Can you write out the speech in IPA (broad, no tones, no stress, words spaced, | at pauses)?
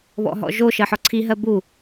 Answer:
βɔ̰ɦɔ̰ʒo ʃɜħɔǀʰi ɦɜbu